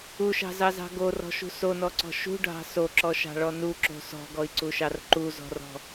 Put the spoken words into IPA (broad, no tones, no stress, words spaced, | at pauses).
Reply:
uʃɑ̤zɑzɑ̤ ɡorɔ̤ʃṳ sonɔǀɔ̤ ʃṳɖʱɑ̤ soǁɔʃɑ̤ɭɔ nuǁo̤ sɔ̤ɡɔi̯ǀuʃɑr ǃuzɔ̤rɔ̤